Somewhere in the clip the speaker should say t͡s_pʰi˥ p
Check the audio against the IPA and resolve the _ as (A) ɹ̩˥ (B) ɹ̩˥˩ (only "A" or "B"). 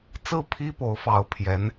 B